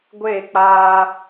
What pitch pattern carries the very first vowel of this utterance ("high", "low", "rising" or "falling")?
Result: falling